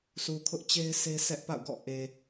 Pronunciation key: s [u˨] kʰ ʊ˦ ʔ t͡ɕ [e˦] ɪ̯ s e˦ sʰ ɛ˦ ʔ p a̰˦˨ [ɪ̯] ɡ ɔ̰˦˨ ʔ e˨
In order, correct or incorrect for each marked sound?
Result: correct, correct, incorrect: ʊ̯

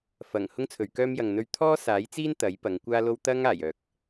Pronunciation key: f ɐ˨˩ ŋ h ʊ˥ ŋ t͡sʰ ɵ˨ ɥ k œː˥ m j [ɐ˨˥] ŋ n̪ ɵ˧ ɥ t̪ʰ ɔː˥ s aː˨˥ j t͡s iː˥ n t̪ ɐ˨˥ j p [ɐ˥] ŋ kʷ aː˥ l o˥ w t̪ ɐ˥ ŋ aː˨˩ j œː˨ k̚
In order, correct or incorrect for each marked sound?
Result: incorrect: ɐ˨, incorrect: ɐ˨˧

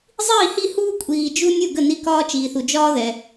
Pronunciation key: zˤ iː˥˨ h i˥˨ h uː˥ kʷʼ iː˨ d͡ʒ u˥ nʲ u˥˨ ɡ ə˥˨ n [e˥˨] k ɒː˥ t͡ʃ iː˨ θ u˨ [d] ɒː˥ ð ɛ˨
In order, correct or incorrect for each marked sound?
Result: incorrect: i˥˨, incorrect: d͡ʒ

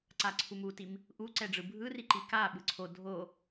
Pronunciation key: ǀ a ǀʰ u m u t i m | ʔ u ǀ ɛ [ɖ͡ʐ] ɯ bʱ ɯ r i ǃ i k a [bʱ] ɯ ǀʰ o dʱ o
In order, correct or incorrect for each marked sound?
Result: correct, incorrect: ɓ

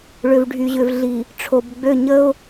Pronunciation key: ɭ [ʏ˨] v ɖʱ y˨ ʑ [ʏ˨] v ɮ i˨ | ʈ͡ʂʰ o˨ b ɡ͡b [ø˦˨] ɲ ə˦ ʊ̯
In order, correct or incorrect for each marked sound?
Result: correct, correct, correct

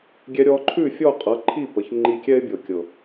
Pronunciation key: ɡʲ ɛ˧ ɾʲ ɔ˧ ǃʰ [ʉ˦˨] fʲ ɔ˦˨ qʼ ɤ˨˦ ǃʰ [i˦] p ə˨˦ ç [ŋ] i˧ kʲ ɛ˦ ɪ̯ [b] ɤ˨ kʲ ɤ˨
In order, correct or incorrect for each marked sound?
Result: correct, incorrect: i˦˨, incorrect: ŋ͡ǃ, incorrect: bʲ

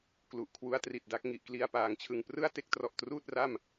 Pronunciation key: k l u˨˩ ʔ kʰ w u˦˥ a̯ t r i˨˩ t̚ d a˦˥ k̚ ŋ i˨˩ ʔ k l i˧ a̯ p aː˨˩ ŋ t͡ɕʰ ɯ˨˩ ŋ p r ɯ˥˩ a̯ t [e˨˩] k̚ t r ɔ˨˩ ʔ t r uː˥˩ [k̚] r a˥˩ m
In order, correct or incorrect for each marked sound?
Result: incorrect: e˦˥, incorrect: t̚

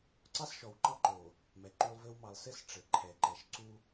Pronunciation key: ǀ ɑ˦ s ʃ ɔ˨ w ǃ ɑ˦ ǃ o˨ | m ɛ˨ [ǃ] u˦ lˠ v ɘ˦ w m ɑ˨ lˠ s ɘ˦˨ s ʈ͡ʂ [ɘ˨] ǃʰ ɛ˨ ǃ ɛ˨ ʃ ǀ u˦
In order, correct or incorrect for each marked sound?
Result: correct, correct

